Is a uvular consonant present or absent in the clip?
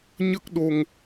absent